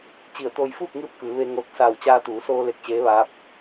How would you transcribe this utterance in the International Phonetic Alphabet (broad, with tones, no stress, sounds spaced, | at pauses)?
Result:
t͡ɕ i˧˩ ə̯ t̪ oː˧ j f uː˥˨ k̚ ŋ ɯː˧ p̚ k ɯː˩˧ ʋ e˧ ŋ oː˧ k̚ s aː˧˩ w t͡ɕ aː˧ t̪ uː˩˧ s oː˧ l e˧ k̚ t͡ɕ eː˧˥ ʋ aː˧˥ p̚